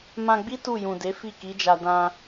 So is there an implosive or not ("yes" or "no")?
no